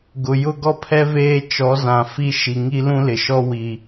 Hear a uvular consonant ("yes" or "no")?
no